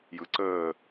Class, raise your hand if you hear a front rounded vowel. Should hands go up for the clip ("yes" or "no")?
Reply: no